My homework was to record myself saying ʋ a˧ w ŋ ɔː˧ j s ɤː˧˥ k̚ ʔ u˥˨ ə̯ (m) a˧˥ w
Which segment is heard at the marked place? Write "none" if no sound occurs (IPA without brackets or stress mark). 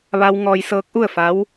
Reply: f